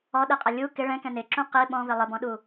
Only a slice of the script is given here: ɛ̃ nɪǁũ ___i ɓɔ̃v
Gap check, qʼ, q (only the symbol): q